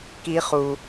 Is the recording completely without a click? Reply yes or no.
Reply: yes